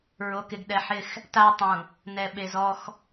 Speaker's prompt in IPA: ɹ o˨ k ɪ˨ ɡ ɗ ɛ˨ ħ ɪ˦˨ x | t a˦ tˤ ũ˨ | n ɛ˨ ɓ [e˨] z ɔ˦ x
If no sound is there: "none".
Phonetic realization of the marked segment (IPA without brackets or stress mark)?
e˨